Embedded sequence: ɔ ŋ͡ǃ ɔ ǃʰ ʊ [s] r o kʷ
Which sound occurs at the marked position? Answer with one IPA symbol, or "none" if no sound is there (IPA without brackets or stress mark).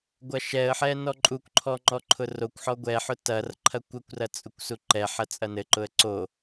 none